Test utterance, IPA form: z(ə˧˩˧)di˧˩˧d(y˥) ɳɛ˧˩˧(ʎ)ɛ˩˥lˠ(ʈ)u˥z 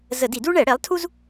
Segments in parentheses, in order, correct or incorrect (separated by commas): correct, incorrect, incorrect, incorrect